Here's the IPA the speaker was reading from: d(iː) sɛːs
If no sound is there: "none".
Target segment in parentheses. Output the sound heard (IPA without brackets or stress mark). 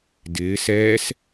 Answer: ɪː